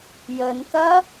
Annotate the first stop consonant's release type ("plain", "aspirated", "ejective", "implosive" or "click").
plain